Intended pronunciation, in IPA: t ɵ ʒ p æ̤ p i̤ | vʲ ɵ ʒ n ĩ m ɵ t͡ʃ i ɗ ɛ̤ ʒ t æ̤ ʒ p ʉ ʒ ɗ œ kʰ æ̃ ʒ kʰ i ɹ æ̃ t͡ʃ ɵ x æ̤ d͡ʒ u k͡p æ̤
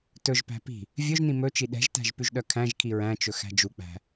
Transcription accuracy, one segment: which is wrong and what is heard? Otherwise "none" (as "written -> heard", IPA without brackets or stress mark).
none